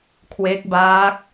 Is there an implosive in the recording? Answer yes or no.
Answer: no